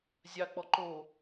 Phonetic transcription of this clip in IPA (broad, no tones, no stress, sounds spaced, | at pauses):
zʲ ɑ k͡p ɔ ǃ o